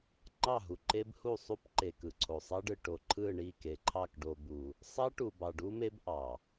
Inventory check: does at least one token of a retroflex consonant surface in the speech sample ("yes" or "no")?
yes